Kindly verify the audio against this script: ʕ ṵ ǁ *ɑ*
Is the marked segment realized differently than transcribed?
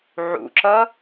yes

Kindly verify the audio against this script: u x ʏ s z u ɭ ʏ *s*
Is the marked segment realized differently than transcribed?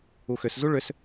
no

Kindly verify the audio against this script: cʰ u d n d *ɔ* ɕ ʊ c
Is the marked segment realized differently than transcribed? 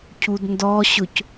no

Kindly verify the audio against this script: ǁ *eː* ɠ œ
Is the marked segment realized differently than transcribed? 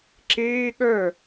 no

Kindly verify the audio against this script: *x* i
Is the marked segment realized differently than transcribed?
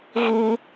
yes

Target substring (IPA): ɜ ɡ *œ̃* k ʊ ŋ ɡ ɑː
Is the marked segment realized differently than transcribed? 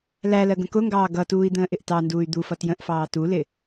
yes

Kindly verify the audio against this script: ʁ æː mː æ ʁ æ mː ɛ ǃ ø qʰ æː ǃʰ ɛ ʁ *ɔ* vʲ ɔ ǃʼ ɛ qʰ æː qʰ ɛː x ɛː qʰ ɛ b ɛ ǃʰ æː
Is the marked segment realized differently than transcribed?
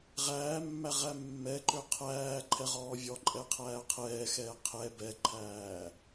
yes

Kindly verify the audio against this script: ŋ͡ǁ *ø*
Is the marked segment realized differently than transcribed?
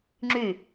yes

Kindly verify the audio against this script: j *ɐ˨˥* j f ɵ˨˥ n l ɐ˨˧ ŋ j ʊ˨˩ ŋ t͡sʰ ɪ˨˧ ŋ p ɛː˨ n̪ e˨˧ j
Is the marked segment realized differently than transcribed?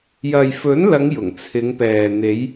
yes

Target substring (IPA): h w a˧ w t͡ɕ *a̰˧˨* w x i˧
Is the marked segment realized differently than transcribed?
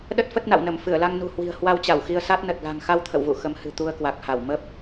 yes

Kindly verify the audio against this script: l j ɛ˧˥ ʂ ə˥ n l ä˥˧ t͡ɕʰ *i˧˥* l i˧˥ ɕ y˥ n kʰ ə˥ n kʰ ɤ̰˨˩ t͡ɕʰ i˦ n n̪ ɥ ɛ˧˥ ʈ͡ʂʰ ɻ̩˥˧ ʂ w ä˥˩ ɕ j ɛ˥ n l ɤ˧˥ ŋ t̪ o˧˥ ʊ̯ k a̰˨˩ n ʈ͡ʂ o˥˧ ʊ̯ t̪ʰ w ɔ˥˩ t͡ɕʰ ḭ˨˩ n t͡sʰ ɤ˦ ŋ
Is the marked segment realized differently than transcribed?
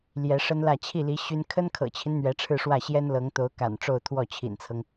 yes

